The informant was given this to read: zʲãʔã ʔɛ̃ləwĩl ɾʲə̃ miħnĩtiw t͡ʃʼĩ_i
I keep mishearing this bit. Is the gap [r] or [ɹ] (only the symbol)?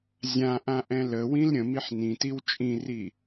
r